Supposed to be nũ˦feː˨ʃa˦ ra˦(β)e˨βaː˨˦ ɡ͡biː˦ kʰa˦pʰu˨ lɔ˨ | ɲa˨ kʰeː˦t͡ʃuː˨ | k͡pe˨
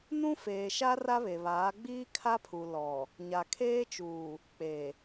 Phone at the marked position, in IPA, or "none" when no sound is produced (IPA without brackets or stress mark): β